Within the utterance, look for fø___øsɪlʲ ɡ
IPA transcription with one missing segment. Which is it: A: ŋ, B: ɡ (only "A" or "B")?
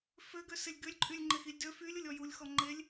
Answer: B